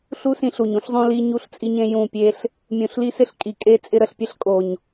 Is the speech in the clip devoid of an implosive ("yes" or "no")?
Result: yes